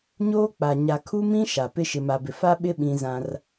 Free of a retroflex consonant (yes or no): yes